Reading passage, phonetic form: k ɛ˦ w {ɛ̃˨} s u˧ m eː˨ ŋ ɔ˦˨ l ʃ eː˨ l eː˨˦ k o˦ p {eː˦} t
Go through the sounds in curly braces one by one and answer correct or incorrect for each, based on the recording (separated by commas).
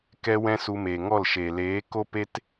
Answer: incorrect, incorrect